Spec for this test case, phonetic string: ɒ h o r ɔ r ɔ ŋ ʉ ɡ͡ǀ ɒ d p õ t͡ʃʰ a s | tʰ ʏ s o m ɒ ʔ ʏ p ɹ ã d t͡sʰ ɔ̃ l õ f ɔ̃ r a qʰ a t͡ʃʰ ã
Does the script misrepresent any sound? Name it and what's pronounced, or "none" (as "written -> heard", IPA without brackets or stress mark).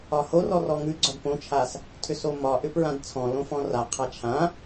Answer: none